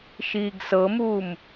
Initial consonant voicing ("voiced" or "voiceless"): voiceless